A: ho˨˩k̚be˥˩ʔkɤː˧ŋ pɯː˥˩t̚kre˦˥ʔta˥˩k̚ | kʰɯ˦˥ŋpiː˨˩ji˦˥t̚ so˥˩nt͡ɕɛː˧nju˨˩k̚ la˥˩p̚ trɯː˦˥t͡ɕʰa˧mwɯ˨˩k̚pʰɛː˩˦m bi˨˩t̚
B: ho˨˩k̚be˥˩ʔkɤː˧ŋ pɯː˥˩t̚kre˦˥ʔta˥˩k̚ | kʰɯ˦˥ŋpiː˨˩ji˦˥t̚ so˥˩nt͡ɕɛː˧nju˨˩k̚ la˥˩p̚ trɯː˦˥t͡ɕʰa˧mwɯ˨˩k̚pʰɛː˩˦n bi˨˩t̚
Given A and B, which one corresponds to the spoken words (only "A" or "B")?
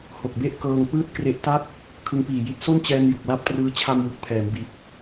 A